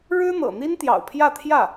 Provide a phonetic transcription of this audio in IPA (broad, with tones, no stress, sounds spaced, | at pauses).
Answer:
ɻ ɻ̩˥ n̪ ɤ̰˨˩ n̪ i˥ n t̪ j ɑ̰˨˩ ʊ̯ pʰ j ä˥˧ t̪ʰ j ä˥˩